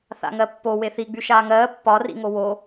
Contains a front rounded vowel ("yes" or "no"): yes